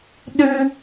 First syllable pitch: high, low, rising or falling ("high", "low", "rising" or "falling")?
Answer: high